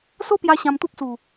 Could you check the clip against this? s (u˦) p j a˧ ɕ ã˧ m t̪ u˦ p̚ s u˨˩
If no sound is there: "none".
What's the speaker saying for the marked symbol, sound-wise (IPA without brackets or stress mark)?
o˦